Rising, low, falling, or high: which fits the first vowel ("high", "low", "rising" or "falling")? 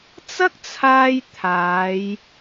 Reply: high